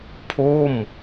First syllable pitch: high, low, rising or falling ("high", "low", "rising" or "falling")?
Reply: falling